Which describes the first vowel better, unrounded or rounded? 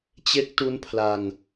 unrounded